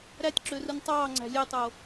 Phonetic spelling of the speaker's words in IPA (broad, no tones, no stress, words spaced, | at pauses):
ɾætʲǁørɯnʲ tˤɑːŋ͡ǀæ̤ lʲetˤo